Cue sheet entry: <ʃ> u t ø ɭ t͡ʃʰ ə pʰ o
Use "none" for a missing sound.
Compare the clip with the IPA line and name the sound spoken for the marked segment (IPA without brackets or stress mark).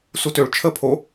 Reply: s